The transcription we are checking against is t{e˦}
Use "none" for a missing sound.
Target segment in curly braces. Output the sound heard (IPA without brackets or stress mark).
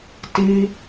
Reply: i˦